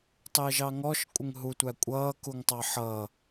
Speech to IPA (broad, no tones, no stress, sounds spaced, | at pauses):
tˤ ɪː ʒ ɑ ŋ ɔ ʃ kʷʼ ɪ ŋ ɦ u tʷ æ kʷʼ ʌː k u ŋ tˤ ɑ ħ ʌː